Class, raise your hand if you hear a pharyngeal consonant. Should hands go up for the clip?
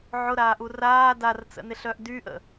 yes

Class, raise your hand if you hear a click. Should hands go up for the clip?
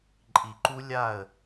yes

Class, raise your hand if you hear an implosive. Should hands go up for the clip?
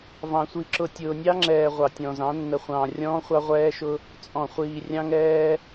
no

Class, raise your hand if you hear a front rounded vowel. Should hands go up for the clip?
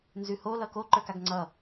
no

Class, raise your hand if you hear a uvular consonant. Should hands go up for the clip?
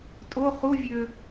yes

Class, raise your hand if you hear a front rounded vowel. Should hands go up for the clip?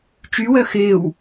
yes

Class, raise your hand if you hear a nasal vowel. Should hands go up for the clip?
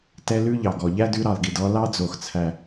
no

